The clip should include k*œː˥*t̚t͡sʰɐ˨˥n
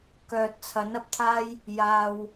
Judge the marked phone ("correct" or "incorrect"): incorrect